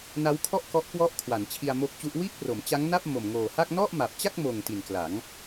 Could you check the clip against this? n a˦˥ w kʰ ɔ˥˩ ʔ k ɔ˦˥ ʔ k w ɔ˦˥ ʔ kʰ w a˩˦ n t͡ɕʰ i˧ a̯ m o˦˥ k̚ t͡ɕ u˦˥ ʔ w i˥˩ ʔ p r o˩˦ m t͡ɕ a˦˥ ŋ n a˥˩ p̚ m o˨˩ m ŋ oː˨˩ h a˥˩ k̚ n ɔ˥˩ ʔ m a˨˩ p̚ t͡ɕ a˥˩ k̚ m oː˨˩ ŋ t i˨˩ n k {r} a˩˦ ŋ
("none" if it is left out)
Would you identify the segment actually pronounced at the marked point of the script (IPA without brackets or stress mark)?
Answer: l